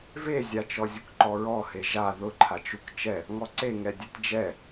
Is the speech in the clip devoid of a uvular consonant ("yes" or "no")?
yes